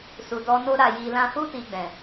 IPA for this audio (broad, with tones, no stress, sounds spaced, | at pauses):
s u˨ d ɔ˧ n o˦ ɾ a˦˨ j i˧ l ã˦ h u˦ t i˧ ɡ͡b ɛ̃˨